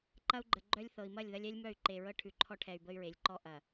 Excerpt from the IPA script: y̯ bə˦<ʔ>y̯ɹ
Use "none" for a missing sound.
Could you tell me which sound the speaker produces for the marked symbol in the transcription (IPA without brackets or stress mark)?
none